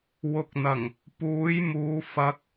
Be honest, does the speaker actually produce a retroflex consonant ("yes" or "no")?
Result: no